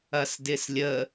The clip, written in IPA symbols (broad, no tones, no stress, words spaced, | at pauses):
ɐsdɪslʲə